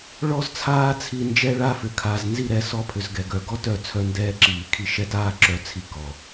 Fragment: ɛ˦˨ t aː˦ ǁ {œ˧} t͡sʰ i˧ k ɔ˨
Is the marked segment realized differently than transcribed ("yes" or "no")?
no